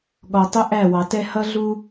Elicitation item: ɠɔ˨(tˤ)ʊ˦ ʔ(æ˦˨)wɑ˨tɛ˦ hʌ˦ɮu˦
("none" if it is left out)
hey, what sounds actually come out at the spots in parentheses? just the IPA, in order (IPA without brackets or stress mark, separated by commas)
tˤ, æ˦˨